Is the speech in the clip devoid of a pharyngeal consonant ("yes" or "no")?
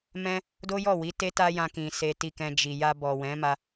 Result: yes